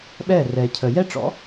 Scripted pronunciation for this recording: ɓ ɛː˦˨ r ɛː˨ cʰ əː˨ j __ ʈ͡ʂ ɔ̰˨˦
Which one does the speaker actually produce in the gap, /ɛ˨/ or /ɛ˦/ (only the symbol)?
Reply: ɛ˦